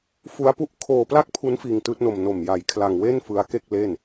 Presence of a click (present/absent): absent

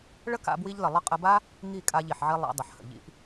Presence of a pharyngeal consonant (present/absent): present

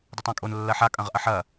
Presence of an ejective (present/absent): present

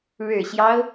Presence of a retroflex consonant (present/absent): present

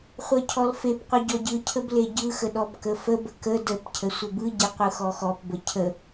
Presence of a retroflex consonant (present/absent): absent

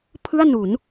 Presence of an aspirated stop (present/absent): present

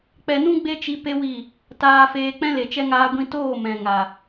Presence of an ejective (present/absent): absent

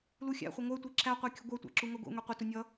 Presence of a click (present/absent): present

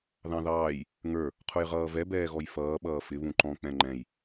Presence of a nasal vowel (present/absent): present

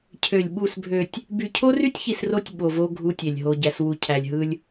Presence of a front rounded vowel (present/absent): present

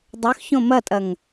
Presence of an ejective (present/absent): present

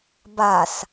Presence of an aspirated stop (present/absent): absent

